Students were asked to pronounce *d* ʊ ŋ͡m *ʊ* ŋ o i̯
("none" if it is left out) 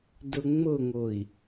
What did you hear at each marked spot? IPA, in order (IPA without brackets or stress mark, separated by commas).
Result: d, ʊ